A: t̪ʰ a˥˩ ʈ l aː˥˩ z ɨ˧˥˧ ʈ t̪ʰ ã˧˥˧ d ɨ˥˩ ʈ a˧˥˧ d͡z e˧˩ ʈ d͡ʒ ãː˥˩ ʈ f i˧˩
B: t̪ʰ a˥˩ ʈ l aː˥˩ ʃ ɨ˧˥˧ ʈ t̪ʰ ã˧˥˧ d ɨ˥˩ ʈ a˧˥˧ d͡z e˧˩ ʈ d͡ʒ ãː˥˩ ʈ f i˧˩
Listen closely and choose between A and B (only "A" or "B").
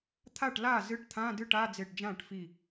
A